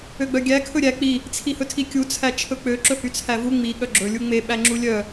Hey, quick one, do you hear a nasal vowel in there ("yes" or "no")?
no